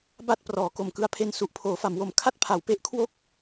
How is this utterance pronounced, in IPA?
b a˥˩ t̚ p r ɔː˩˦ k o˨˩ m k ɯ˦˥ a̯ pʰ e˧ n s u˨˩ ʔ pʰ oː˩˦ f a˩˦ m w o˨˩ m kʰ a˥˩ t̚ pʰ a˩˦ w p e˦˥ ʔ kʰ w o˥˩ k̚

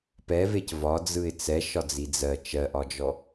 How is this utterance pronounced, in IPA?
p ɛ v e c v ɒ d͡z ɯ ɪ̯ t͡s ɛ ʃ ɒ d͡z i d͡z ɜ t͡ʃ ɜ ʔ ɒ d͡ʒ ɔ

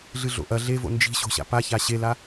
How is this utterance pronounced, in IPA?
ɮ ɨ ɮ o̰ ʔ ɐ ɮ e v o̰ n d͡ʒ i̤ ɕ o̤ ɕ a̰ p a ç a ɕ e l a

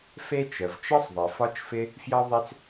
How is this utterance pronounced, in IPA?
f e˥ t͡ʃ ə˩ v t͡ʃ ɤ˥ sˤ ðˤ e˩ f ɒ˥ t͡ʃ f ɪ˥ | f j ɤ˥ ðˤ e˥ t͡s

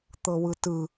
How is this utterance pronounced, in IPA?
t̪ ɤ w ɯ t ɯ

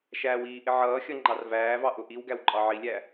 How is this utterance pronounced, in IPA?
ʃ æː w iː ʔ ɪ ʕ ʌː xʲ ʌ ŋ͡ǃ ɑ r v æː v ɑ ʔ ʊ ʔ i w ɡ æ w ǃʼ ɑ ʕ i lʲ æ

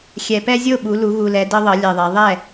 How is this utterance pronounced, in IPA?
xʲ ɛ˨˩ p ɛ˦ zʲ o˥˩ ɓ u˩˧ l u˩˧ ɣ u˨˩ l ɛ˩˧ d ɤ˦ ðˤ ɤ˩˧ lʲ ɛ˨˩ ðˤ ɛ˩˧ ðˤ ɛ˥˩

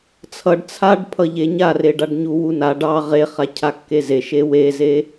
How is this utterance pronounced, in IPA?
t͡sʰ ʌ ɖ t͡sʰ a ɖ pʰ ʌ ʎ e ɲ a r e ɖ a ɖ ɲ u w u n a ɖ ɑ ʁ e χ a cʰ a kː e z e ʃ e w e z e

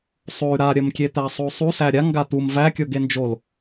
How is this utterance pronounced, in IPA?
sˤ o y̯ ɾ a ɾʲ ɜ m kʲ e t̪ æ sˤ o sˤ u s æ ɾʲ a ŋ ɡ a t̪ u m v æ kʲ o ɡ e n d͡ʒ o l

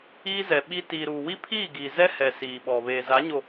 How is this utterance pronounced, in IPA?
iː˦ z ɛ˨ ɓ i˦ t iː˨ ɾ uː˨ w i˦ pʰ iː˦˨ ɡ iː˨ z ɛ˦ h ɛ˨ s iː˨ ɓ ɔ˨ β eː˨ z a˨˦ ɲ o˨

